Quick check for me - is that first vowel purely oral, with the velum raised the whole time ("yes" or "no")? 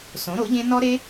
no